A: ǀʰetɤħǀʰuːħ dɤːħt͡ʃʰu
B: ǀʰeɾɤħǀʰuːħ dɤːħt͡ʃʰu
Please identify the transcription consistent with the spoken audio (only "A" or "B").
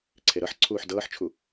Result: B